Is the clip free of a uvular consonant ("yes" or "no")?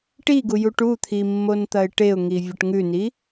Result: yes